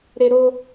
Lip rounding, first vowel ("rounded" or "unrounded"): unrounded